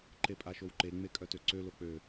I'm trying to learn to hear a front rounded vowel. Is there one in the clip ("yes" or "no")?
yes